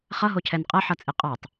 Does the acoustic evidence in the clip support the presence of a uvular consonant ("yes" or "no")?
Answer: yes